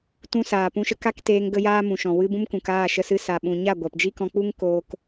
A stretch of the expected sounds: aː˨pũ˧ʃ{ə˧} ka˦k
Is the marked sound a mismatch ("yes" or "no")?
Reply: no